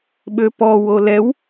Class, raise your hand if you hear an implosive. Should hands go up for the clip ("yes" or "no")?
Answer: yes